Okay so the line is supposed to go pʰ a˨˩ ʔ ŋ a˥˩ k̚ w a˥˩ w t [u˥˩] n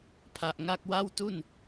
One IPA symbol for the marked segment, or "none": u˥˩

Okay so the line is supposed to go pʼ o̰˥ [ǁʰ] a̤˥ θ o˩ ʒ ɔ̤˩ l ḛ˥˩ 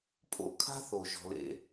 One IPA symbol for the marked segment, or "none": kʰ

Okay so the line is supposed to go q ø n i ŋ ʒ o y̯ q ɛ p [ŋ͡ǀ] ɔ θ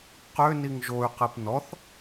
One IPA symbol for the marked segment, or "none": n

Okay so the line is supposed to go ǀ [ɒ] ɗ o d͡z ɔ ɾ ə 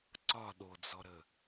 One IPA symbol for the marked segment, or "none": ɒ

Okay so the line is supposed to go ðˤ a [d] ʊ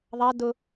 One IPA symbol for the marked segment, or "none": d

